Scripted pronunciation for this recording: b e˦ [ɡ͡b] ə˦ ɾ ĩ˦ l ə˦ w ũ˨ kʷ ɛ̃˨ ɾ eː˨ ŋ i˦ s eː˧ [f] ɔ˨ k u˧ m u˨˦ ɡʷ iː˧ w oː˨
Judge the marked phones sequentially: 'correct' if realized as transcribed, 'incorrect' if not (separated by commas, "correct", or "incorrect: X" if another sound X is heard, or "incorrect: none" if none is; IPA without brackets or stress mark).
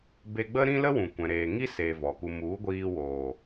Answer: correct, incorrect: v